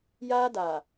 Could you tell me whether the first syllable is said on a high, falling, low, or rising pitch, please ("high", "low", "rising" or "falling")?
high